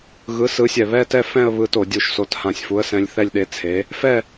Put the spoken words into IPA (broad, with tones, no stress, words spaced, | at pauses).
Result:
ɣɯ˨˥sɯ˨˥sʲɛ˧˩ βɛ˥˧tɛ˥˧ fɛ̃˥˧ə̯ βɯ˨˥to˧˩˧dʲu˧˩ʃso˨˥t hã˧˩sʲfu˨˥ə̯sɛ̃˨˥lʲ θɛ˥˧lʲɗe˨˥ t͡sʰe˨˥ | fɛ˥˧